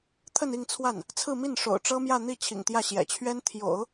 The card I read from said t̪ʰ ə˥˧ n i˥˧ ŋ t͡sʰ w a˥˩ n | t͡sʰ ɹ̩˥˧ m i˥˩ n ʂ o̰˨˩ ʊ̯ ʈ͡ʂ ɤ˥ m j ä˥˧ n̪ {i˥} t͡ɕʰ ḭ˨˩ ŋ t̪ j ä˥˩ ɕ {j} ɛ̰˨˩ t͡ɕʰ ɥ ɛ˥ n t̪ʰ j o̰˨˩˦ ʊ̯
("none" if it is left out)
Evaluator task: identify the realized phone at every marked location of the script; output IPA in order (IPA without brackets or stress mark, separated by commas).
i˥˩, j